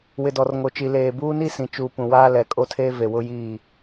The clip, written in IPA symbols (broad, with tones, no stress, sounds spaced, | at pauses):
w ɪ˨ d ɔ˨ r ŋ o˨ t͡ʃ i˨ l eː˨ b uː˦ n i˦ s ĩ˨ t͡ʃ uː˨ p ũ˨ w aː˦ l ɛ˨ kʼ o˦ tʰ eː˦ v e˨ w ʊ˦ j iː˦˨